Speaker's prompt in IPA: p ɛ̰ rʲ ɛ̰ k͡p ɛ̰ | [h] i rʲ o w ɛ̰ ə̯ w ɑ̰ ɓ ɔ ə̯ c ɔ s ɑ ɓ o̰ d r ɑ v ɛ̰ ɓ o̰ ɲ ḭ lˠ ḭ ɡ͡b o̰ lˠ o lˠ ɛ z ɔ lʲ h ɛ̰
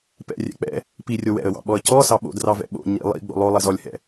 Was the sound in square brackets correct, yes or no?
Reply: no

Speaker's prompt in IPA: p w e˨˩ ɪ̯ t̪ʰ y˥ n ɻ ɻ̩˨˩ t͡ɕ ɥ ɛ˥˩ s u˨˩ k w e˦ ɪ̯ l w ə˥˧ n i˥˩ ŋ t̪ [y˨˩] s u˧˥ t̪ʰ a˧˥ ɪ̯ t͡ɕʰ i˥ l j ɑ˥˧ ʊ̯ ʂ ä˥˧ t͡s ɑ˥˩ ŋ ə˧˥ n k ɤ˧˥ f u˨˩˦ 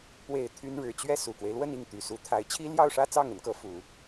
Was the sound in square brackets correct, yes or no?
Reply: yes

